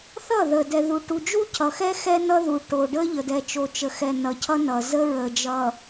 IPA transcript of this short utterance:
θ ʌ˦˨ ð ə˨ d ɛ˨ ð u˨ ʈ u˨ d͡ʒ u˦ cʰ ʌ˨ x ɛ˦ x ɛ˦ n ʌ˦ ð u˨ ʈ o˨ ɖ ə˦ ʎ ə˨ d ɛ˨ t͡ʃ o˨ t͡ʃ ə˨ x ɛ˨ n ʌ˨ cʰ ʌ˦ n ʌ˨ z ə˦ ɹ ə˨ d͡ʒ ʌ˨

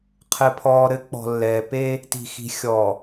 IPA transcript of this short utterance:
qʰ ɘ˨ pʰ ɔː˨ ɾ ɘ˨˦ k͡p ɔ̤˨ lː ɛː˨ p e˦ | t i̤˨ x i̤˨ xʲ ɔ˨

